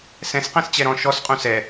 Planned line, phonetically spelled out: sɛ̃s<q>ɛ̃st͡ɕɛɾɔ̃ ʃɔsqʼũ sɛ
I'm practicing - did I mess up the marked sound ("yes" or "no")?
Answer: no